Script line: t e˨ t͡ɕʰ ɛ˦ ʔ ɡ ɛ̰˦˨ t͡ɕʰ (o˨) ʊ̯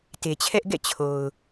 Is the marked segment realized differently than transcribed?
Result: no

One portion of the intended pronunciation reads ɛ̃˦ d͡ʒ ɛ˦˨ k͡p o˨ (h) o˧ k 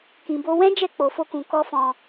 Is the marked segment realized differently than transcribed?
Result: yes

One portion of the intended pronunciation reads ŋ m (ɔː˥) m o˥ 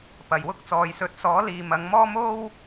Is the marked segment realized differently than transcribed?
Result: no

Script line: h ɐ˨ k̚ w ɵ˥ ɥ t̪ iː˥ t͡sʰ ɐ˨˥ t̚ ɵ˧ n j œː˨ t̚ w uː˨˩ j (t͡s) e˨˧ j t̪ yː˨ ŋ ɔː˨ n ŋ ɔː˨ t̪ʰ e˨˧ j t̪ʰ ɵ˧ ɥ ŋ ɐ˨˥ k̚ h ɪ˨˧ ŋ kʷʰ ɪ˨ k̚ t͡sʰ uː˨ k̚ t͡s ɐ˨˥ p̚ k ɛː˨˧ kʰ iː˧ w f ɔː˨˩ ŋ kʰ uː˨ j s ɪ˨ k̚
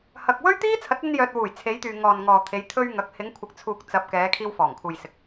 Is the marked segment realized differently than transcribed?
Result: yes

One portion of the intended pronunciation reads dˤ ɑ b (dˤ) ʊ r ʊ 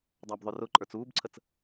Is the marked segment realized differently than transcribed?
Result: yes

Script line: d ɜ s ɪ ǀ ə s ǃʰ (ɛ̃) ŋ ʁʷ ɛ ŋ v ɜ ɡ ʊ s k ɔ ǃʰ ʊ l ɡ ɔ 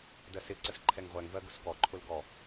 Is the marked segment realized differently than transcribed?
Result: yes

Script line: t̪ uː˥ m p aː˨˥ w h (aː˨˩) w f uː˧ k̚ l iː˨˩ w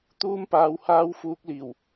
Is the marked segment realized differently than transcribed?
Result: yes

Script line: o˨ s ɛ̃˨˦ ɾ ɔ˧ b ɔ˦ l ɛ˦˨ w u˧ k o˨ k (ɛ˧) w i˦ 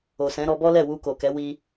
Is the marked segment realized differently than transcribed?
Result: yes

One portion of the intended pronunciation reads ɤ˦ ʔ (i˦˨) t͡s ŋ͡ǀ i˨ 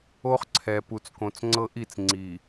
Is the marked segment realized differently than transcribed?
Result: no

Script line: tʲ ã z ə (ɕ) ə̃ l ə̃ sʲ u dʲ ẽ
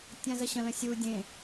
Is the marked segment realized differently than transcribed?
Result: no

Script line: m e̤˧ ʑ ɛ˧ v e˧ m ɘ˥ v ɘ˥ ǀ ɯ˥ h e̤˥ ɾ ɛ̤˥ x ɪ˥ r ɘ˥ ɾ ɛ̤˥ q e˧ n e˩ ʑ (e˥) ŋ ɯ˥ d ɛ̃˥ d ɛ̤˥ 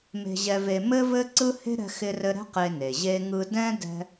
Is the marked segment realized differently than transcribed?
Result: no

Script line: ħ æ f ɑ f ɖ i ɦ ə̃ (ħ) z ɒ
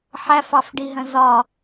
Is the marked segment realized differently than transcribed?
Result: yes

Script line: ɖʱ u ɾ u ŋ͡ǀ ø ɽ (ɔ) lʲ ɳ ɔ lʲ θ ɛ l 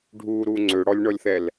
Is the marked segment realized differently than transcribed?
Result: no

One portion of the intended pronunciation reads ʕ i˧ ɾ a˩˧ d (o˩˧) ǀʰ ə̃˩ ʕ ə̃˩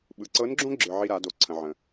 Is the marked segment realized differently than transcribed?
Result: no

